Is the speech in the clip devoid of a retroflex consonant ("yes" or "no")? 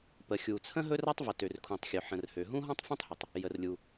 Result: yes